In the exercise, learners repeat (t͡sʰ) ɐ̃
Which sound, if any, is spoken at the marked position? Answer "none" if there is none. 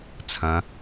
t͡sʰ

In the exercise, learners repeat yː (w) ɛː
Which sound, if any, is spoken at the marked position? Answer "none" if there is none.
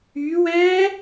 w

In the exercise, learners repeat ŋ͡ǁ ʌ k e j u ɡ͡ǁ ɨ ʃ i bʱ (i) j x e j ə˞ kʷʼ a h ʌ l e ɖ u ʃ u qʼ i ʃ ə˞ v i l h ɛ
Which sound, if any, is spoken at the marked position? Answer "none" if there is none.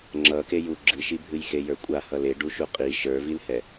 ɨ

